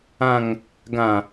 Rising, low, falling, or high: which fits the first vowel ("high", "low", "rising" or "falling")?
low